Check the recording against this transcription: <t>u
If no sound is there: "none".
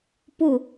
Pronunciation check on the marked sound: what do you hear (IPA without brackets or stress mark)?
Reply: p